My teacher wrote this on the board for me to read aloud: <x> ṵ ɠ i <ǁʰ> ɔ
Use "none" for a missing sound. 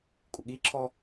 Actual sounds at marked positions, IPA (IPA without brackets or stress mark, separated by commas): kʼ, ǁʰ